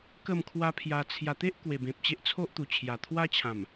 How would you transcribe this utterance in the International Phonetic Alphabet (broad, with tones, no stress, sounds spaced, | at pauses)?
k ə˥˧ m kʰ w a˦ pʰ j a˧ t͡sʰ j a˨˩ t̪ e˦ ʔ k w e˨˩ b ẽ˨ p̚ t͡ɕ e˦ ʔ t͡sʰ o˦ ʔ t̪ u˨˩ t͡ɕʰ j a˨˩ t̪ʰ w a˦ t͡ɕʰ ã˨˩ m